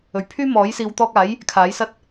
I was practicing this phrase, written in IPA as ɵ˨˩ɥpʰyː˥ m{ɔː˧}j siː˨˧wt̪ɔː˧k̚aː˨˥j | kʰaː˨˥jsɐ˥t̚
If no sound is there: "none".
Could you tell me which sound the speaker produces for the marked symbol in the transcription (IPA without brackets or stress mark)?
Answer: ɔː˨˥